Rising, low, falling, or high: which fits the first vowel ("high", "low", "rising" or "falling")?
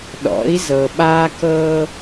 rising